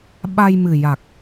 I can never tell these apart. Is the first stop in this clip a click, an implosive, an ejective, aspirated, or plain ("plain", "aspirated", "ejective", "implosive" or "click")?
implosive